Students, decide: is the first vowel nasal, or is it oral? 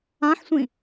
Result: nasal